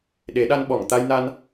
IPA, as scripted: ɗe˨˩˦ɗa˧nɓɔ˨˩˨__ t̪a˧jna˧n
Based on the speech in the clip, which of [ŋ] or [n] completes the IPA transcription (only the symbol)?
ŋ